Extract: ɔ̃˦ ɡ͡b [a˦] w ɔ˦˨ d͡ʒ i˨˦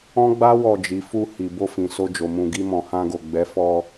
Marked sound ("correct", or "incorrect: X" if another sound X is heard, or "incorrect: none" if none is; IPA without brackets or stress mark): correct